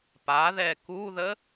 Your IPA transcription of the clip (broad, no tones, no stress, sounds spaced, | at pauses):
p a ð ɛ k u ð ə